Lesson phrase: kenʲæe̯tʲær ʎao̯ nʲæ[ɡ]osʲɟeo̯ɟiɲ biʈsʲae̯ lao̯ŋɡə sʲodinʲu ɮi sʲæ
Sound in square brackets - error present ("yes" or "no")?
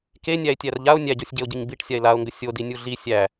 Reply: yes